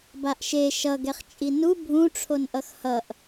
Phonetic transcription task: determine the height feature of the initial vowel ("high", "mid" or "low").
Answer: low